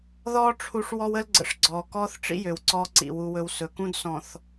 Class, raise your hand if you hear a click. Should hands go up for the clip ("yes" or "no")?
yes